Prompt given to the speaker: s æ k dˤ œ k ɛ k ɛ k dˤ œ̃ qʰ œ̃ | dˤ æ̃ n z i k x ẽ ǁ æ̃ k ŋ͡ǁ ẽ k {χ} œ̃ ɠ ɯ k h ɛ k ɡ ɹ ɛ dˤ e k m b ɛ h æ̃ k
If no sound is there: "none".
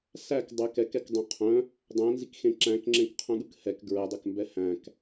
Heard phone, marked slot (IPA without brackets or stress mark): qʰ